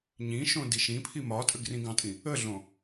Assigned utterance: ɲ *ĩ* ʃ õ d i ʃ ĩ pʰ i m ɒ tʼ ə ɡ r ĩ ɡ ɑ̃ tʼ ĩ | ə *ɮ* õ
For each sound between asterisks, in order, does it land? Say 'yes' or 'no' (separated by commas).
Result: yes, yes